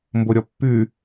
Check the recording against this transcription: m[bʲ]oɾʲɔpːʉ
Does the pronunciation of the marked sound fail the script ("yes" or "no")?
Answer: yes